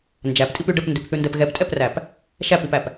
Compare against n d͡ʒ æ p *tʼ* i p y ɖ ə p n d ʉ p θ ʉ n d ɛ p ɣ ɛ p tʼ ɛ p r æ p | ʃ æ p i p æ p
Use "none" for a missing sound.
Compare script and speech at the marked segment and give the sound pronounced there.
tʼ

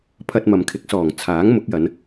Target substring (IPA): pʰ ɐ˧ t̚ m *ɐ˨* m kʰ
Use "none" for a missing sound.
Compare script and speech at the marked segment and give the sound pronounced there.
ɐ˨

